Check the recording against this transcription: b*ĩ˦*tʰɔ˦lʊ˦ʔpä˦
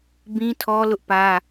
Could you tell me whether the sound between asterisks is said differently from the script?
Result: no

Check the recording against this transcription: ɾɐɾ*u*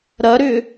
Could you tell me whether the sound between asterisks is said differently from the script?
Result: yes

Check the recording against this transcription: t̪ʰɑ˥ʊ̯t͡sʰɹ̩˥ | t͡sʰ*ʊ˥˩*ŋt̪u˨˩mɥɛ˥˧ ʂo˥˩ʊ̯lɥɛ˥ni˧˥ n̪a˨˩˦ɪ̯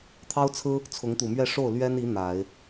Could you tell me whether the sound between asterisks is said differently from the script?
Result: yes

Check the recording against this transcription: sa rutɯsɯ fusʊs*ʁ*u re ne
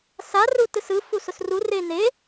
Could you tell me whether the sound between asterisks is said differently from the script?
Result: yes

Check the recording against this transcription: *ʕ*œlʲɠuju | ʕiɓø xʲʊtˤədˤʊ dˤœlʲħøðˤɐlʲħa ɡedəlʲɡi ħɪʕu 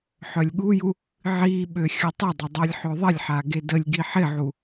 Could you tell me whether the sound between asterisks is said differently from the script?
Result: yes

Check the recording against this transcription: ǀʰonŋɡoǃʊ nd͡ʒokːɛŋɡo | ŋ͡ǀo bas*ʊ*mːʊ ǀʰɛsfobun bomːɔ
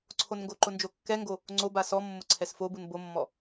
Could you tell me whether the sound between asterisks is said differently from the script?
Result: yes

